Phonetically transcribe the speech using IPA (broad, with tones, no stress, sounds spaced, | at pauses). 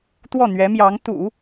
t̪ w ɔ˥˩ n̪ ɥ ɛ˧˥ m j ɑ˧˥ ŋ t̪ ṵ˨˩˦